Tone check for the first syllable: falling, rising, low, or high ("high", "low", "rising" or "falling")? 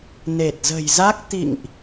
low